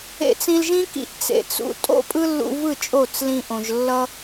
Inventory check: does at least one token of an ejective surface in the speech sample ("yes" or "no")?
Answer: yes